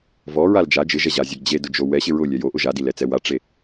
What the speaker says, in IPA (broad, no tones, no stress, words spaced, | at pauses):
vɔɹal d͡ʒa d͡ʒɪʒɛʑazʲaɡ d͡ʑedʊd͡ʒo wɛɕɪ ɹʊlʲɛ joʔʊ ʒadilɛt͡sɛ waʈ͡ʂe